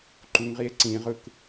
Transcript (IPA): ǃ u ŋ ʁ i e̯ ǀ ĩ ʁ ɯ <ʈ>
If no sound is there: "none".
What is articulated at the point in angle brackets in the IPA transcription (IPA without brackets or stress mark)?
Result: k